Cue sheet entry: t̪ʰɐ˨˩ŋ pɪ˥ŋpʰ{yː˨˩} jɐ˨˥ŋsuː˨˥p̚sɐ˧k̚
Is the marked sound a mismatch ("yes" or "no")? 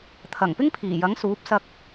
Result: yes